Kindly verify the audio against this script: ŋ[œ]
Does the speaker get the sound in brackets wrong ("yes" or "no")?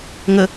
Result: yes